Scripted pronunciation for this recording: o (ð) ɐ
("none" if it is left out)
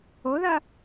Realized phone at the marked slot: ð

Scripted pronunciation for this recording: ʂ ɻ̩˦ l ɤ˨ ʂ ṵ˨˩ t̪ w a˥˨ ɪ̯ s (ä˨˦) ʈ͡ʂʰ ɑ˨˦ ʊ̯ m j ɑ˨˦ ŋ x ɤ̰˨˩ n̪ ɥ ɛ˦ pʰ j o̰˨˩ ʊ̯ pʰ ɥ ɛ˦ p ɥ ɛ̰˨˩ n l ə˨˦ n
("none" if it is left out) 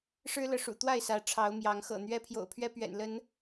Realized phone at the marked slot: ä˨˦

